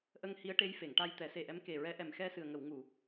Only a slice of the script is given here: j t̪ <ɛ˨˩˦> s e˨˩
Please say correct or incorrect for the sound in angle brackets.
correct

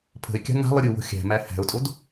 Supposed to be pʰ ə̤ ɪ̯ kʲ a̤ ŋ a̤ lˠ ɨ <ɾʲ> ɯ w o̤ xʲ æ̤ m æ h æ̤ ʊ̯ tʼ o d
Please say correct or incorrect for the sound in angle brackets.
correct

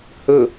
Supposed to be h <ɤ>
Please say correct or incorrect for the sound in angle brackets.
incorrect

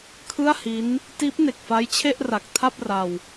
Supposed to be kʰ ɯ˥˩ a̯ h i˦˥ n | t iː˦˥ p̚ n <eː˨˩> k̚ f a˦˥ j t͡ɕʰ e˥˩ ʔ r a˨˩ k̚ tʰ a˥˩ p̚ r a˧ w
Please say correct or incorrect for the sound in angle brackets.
incorrect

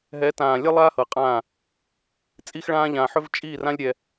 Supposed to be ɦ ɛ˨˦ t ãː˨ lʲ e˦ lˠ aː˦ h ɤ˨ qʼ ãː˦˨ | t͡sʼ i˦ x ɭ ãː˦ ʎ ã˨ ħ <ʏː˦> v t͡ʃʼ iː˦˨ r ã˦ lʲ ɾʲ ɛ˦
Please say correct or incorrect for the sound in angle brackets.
incorrect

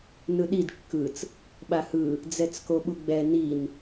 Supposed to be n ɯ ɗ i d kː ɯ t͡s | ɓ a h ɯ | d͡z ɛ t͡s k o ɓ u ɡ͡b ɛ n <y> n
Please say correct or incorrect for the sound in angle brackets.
incorrect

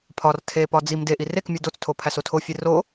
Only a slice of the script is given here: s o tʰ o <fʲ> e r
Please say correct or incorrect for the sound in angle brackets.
correct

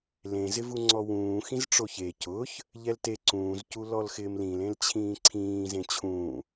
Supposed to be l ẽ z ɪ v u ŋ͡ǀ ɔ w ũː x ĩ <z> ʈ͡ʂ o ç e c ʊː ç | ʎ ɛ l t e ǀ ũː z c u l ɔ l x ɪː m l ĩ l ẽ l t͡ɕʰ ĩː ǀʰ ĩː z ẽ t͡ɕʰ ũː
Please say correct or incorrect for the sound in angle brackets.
correct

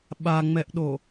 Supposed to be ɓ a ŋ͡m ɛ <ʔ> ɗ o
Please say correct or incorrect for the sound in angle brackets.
correct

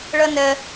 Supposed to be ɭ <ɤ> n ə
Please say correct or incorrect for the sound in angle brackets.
correct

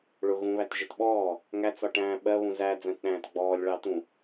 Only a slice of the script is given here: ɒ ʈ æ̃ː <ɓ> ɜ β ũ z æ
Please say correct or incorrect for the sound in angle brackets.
correct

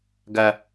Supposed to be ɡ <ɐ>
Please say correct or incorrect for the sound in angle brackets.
correct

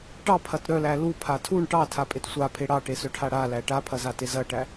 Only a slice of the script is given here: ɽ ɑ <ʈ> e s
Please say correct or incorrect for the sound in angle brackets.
correct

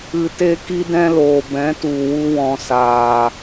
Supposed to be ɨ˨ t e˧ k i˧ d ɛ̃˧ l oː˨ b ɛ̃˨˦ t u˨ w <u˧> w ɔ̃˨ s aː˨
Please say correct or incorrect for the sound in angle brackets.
correct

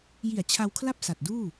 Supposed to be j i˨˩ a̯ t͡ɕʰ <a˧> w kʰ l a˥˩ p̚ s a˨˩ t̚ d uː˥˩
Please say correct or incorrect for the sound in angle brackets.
correct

